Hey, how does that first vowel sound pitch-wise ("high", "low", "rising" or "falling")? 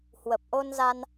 low